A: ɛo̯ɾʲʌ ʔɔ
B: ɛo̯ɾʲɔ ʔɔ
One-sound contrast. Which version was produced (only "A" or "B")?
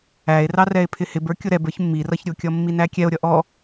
A